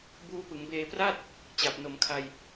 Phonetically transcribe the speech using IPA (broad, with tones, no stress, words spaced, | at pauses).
buː˦˥pɯ˩˦ŋ beː˧pra˥˩t̚ | t͡ɕa˨˩p̚no˩˦mkʰa˧j